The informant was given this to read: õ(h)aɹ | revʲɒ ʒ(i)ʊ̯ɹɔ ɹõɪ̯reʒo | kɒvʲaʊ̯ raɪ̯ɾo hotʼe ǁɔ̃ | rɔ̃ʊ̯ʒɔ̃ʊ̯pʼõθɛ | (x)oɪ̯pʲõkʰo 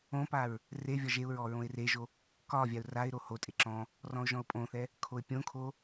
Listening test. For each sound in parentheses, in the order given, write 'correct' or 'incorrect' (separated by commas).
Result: incorrect, incorrect, incorrect